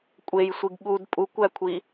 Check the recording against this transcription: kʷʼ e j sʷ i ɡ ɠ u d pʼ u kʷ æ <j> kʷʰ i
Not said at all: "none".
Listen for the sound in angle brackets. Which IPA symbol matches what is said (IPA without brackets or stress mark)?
none